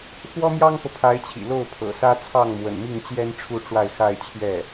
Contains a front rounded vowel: no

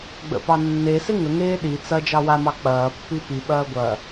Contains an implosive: yes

